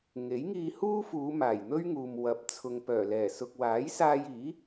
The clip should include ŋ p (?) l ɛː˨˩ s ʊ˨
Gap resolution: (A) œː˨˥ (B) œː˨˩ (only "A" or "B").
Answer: B